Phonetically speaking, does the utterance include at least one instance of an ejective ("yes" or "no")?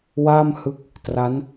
no